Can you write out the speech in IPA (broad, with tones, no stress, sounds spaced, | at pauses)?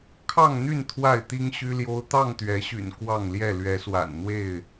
kʰ ɑ˥˨ ŋ n̪ y˥˨ n t̪ʰ w a˥˨ ɪ̯ t̪ i˦ ŋ ɕ y˦ l j o˦ ʊ̯ t̪ ɑ˥˨ ŋ t̪ ɥ ɛ˨˦ ɕ y̰˨˩ n k w ɑ˥˨ ŋ l j ɛ˥˨ l ɥ ɛ˨˦ s w a̰˨˩ n n̪ w e˥˨ ɪ̯